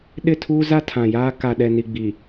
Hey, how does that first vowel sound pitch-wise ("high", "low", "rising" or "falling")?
falling